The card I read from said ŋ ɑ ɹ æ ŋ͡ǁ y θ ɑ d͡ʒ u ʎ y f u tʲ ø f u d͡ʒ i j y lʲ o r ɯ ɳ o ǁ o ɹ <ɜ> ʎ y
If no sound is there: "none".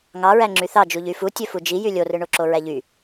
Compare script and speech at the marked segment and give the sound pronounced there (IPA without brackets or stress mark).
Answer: æ